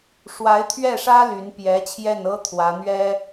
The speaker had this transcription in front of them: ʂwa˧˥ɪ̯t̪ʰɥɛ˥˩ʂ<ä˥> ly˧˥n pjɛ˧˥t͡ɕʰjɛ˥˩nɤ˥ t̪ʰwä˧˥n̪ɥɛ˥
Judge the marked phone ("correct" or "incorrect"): correct